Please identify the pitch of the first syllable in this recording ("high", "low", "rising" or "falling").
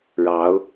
rising